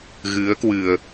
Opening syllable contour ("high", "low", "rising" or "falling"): rising